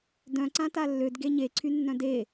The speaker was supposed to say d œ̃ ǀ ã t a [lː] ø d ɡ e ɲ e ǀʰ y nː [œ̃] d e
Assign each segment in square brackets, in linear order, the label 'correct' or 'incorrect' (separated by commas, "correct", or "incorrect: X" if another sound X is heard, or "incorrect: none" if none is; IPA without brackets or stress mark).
correct, correct